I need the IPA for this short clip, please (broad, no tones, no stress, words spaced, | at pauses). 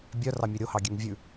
bʲœrɑmʲø ɾʲohɑɡʲøŋ vʲʉ